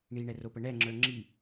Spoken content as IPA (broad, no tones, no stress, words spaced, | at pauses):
ɳiɳɛropə ɳɛŋ͡ǁə˞ ŋ͡ǁi